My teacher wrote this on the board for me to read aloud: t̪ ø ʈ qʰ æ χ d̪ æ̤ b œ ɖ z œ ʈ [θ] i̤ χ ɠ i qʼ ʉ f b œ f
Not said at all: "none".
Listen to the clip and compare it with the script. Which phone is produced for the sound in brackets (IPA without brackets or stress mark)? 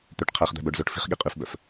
f